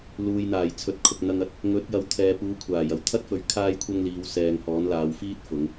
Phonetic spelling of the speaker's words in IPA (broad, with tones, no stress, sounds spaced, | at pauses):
l uː˨ j n̪ aː˨˩ j t͡sʰ ɵ˨˥ t̚ kʰ ʊ˨ k̚ n̪ ɐ˧ ŋ ɐ˧ t̚ | ŋ ɵ˨˥ t̚ j ɐ˨˧ w t̪ʰ ɛː˨ p uː˨˧ kʷʰ aː˨˩ j ɐ˨˩ w t̪ʰ ɐ˥ t̚ f ɵ˨ ɥ kʰ aː˥ j kʷʰ ɐ˥ ŋ l iː˨˧ w s ɛː˨ ŋ h ɔː˨˥ n l aː˨˧ w f iː˥ t̚ f ʊ˨˧ ŋ